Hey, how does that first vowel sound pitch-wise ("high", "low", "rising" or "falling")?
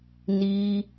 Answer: high